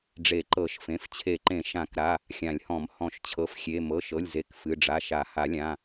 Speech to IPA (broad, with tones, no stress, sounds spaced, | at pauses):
ɖ͡ʐ e˨˩˦ ǃ ɤ˨˩˦ ʃ f ẽ˩˧˩ f t͡ɕʰ e˨˩˦ ǃ ẽ˨˩˦ ʃ ã˨˩˦ k ɾ a˩˧˩ | xʲ ã˨˩˦ lʲ h ɔ̃˨˩˦ m h ɔ̃˨˩˦ ʃ t͡ɕʰ ɤ˩˧˩ f xʲ e˩˧˩ m ɤ˩˧˩ ʃ ɤ˩˧˩ lʲ z e˩˧˩ k f ɨ˩˧˩ ɖ͡ʐ a˩˧˩ ʃ a˨˩˦ h a˨˩˦ lʲ ã˩˧˩